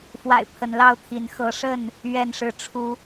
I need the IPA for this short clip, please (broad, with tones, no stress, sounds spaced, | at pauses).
f w a̰˨˩ ɪ̯ pʰ ə˨˦ n l ɑ˥˨ ʊ̯ t̪ʰ i˨˦ n x ɤ˨˦ ʂ ə˥˨ n | ɥ ɛ˥˨ n ʂ ɻ̩˥˨ ʈ͡ʂʰ u˦